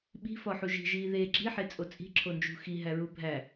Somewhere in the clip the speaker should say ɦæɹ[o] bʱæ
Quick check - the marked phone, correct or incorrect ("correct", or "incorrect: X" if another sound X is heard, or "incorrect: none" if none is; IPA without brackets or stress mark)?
incorrect: u